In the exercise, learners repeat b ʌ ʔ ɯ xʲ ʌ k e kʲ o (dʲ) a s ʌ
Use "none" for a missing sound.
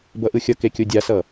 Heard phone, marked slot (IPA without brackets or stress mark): dʲ